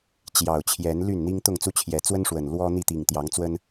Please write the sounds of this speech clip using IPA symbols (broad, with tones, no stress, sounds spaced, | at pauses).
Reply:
t͡ɕ j ɑ˨˩ ʊ̯ t͡ɕʰ j ɛ˨˦ n l y˥˨ n n̪ i˦ ŋ t̪ ʊ˥˨ ŋ t͡s u˦ t͡ɕʰ j ɛ˨˦ t͡s w ə˦ n ʂ w ə˨˩ n l w ɔ˦ n̪ i˥˨ t̪ i˨˩ ŋ t̪ j ɑ˨˦ ŋ t͡s w ə˦ n